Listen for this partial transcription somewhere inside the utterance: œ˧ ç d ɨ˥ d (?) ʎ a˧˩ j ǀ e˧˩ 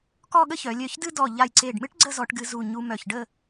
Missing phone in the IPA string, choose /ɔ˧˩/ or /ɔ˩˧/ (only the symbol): ɔ˧˩